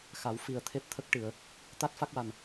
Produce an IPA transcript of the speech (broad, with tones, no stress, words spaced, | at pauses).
xa˨˩˦w fi˨˩ə̯ t̪ʰe˦˥p̚t̪ʰə˦˥k̚ʈɨ˨˩˨ə̯ | t̪a˦˥t̚ fa˦˥k̚wa˨˩n